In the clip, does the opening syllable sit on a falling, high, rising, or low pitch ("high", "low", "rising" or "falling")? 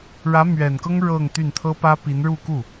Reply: rising